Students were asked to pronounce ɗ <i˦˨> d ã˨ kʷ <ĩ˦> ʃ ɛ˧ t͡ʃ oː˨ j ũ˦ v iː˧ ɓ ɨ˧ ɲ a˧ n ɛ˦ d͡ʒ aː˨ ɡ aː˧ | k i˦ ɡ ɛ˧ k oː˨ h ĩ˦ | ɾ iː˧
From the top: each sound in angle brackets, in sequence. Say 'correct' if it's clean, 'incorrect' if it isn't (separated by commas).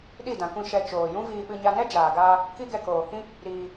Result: correct, incorrect